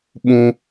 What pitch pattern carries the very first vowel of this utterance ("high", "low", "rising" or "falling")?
high